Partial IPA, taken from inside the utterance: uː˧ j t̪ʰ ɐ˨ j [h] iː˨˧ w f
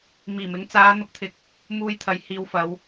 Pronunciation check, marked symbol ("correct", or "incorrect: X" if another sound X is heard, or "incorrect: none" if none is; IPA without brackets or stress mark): correct